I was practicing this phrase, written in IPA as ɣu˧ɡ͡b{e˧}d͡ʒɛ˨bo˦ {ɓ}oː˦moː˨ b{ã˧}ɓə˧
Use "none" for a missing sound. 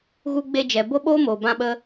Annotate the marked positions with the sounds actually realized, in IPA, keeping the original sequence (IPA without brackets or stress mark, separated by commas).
e˧, ɓ, ã˧